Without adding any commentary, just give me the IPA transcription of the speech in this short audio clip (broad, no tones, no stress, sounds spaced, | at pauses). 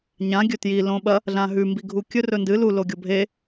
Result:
ɲ ã ɡʲ ɵ t j i l õ ɓ ɐ | ɮ ã ɦ ʉ m b i ɡʱ u kʲ ɵ r ɵ n d ɨ l u l o ɡʲ o bʱ e